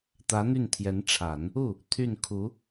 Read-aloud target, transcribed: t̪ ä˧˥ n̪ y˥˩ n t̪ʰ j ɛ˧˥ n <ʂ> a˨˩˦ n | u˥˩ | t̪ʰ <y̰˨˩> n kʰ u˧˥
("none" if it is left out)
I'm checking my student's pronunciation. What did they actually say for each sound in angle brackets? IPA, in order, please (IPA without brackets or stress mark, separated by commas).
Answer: ʈ͡ʂʰ, y˥˩